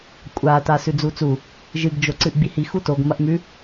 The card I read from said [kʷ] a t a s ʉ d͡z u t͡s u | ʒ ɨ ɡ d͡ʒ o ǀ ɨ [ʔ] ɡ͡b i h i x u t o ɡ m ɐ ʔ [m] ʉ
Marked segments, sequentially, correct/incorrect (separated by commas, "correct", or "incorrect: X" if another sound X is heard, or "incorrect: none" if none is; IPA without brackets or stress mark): incorrect: kʷʼ, correct, correct